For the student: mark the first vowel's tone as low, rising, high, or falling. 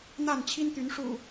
falling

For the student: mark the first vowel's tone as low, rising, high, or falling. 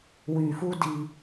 low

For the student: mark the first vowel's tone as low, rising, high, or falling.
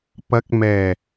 rising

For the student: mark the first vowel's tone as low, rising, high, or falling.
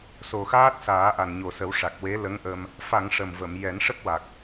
low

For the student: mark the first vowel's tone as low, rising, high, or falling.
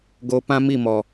high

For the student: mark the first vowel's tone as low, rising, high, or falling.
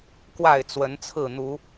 falling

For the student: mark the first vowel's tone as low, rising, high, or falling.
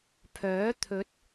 rising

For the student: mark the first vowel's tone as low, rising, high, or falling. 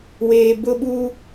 low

